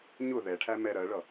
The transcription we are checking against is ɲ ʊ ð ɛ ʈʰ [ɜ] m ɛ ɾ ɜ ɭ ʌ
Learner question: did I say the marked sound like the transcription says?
no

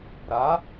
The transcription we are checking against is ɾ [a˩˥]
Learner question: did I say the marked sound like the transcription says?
yes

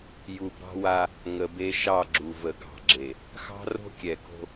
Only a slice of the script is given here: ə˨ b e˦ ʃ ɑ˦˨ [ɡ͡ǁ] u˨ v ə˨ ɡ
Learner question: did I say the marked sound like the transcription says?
yes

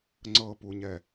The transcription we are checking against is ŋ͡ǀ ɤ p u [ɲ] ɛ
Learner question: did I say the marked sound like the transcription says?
yes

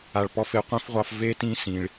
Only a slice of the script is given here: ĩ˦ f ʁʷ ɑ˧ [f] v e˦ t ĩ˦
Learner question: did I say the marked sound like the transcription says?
yes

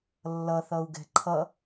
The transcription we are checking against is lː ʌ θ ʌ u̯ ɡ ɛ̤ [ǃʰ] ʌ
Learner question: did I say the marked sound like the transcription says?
yes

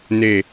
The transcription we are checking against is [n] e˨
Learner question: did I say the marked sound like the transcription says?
yes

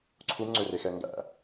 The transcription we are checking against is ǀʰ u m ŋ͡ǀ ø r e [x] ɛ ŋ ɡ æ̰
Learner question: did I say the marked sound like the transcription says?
yes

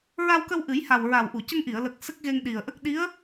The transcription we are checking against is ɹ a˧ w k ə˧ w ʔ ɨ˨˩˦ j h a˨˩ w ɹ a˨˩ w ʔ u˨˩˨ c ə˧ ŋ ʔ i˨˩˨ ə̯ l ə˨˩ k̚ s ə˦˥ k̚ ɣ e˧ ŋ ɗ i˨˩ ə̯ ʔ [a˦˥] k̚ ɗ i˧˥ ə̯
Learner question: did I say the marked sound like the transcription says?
no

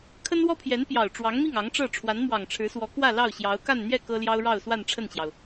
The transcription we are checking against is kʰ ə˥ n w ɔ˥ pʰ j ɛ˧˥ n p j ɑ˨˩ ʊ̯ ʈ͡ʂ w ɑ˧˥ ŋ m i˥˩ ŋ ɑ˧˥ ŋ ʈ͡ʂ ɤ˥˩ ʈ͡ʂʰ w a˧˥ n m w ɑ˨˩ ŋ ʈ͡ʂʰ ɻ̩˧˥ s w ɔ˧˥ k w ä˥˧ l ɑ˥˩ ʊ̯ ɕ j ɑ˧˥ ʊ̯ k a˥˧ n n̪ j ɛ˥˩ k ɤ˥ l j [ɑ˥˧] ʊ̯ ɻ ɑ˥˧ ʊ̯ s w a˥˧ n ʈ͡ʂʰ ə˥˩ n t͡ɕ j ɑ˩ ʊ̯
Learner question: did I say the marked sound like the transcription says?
no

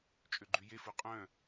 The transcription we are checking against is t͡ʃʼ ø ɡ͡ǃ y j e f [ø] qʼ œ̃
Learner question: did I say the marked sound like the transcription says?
no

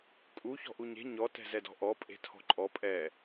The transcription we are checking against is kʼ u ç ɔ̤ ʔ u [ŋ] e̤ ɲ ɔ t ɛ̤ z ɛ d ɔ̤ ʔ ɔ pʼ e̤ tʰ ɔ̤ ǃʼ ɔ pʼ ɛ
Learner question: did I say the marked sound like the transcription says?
no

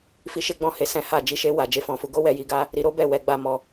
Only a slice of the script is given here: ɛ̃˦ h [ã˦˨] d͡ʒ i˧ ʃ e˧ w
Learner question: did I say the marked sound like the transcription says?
no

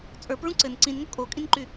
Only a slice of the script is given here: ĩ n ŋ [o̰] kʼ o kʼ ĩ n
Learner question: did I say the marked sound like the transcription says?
no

